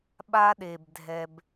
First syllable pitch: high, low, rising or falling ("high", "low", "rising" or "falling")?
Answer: high